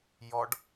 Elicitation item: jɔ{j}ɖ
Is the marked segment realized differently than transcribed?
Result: yes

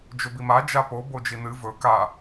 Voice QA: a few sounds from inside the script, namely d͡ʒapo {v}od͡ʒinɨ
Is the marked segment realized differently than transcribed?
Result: yes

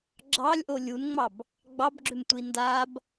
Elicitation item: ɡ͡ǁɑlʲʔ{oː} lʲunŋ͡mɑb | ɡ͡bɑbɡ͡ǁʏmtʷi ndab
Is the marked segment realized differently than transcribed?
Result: yes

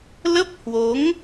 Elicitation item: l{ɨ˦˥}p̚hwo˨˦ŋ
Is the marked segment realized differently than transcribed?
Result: yes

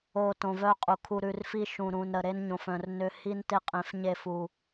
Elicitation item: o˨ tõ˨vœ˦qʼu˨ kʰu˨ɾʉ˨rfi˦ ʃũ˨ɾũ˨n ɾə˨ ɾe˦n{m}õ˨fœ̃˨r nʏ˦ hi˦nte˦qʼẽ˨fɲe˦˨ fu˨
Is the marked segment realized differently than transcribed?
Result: yes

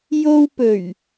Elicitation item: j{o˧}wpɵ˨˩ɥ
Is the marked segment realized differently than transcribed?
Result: no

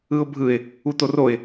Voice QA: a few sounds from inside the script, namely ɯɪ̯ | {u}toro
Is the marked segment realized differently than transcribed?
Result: no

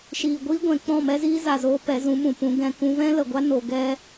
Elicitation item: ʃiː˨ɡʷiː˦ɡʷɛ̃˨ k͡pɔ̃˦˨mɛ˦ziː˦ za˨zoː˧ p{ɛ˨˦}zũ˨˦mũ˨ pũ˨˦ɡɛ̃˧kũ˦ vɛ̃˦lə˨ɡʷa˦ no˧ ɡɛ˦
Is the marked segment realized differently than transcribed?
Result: no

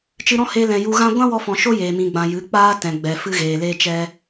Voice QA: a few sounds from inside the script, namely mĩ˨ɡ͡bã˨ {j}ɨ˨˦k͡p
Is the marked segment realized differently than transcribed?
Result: no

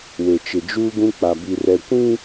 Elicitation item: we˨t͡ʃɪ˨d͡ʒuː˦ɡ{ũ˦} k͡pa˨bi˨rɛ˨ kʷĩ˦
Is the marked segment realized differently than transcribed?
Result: no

